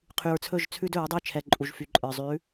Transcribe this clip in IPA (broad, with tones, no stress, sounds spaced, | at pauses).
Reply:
qʰ y˨ ɹ t͡sʰ ɵ˦˨ ʒ t͡sʰ ʉ˦ d ɵ˨˦ ɹ dˤ ʉ˦˨ t͡ʃʰ ɛ˨ ǃʼ u˨ ʒ f y˨ ǃʼ ə˞˨ zˤ ʉ˨˦